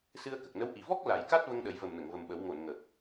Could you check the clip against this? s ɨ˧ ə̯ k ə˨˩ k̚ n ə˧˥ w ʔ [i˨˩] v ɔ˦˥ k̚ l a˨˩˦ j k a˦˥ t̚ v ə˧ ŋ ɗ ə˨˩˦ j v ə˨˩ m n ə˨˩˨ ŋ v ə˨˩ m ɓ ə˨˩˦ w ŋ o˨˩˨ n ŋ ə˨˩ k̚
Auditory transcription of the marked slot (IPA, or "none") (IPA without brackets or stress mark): i˨˩